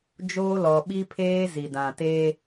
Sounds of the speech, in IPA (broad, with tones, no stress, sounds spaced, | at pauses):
d͡ʒ oː˦ l ɔ˨ ɓ i˦ pʰ eː˦ z i˨ d ã˨ t e˦